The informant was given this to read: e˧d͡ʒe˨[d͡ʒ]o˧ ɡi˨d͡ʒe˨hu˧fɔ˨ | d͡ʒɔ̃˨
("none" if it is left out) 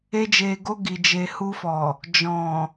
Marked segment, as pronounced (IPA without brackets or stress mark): ɡ